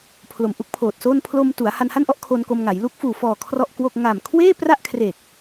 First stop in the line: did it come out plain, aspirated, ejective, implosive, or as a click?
aspirated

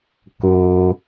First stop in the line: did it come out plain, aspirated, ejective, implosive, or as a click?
plain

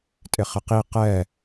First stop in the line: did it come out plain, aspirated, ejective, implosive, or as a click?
ejective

